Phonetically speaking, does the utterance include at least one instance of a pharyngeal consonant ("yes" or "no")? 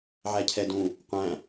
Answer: yes